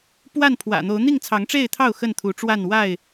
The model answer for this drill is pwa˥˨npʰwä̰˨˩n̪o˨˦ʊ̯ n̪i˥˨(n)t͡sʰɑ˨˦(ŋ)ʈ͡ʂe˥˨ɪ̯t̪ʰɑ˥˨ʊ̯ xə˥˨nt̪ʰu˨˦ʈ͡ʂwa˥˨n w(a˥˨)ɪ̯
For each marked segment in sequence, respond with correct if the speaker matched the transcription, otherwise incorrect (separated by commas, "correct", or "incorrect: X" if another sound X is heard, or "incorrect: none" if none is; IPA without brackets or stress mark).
incorrect: ŋ, correct, correct